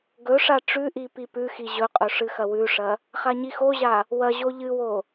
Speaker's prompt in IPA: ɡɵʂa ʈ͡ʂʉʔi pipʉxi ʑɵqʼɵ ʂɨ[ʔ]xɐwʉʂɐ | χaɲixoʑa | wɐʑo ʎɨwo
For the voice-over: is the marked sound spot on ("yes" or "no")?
no